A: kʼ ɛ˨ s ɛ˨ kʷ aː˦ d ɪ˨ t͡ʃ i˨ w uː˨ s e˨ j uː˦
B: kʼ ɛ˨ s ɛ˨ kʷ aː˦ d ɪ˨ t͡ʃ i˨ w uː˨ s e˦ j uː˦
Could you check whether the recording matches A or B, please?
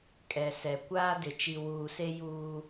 B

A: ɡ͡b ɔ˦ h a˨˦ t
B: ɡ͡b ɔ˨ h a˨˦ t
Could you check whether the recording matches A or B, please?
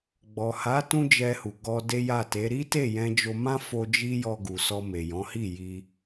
B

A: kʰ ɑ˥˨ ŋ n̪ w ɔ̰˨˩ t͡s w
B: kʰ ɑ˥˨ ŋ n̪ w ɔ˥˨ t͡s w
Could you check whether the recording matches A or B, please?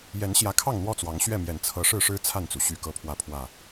B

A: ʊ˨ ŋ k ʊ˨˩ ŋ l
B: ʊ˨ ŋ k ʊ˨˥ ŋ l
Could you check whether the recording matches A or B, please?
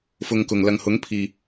A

